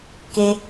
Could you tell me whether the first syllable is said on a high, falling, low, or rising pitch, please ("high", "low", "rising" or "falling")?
high